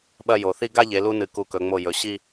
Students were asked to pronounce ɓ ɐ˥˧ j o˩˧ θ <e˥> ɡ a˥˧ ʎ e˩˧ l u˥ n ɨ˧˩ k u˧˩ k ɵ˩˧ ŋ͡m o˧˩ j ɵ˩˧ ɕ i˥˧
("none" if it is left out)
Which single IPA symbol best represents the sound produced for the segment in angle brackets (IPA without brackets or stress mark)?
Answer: i˥